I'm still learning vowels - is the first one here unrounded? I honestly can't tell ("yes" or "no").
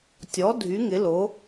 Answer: no